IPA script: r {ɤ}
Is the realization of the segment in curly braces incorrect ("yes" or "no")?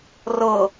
no